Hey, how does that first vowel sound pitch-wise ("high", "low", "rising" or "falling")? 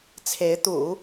rising